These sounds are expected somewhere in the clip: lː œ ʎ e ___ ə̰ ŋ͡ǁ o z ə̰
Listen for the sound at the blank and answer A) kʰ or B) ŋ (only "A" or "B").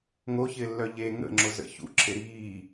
B